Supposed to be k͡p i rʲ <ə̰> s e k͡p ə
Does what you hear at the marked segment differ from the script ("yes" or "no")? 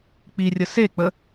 yes